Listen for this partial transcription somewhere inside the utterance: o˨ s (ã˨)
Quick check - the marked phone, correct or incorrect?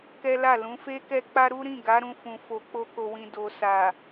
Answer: incorrect